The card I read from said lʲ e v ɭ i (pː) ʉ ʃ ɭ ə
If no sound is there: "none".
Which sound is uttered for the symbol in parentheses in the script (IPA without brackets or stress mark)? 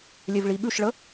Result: ɓ